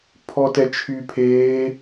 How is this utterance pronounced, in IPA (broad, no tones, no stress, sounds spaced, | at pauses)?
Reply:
pʰ ɔ t ɛ t͡ʃʰ y pʰ eː